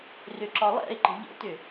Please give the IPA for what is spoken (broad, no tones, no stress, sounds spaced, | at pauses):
r ʏ ǁ ɒ lˠ ɛ̰ ɪ̯ ǃ ə̤ ʎ ə̰ t ʏ